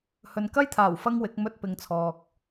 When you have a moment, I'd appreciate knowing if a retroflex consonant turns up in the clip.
no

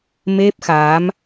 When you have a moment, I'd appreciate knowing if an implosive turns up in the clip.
no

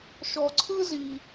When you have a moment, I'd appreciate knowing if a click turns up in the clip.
yes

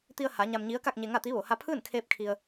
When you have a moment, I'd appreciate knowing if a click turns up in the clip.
no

